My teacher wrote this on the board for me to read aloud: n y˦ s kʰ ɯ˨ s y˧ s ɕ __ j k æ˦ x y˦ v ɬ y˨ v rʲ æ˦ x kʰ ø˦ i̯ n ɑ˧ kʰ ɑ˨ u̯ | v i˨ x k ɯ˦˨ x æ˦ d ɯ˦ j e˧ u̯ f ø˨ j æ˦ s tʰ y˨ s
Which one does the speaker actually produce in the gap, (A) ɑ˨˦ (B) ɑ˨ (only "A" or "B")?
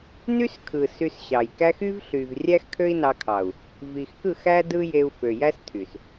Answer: B